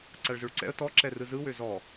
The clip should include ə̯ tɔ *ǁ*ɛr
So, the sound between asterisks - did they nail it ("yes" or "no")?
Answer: yes